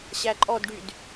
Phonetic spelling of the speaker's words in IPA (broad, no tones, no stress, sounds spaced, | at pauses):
ɕ æ ǃʼ ɔ d ɖ y d